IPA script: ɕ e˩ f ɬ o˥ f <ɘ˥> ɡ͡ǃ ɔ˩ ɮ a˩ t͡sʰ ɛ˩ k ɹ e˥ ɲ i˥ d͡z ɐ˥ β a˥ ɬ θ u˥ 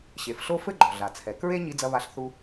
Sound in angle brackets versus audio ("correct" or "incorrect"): correct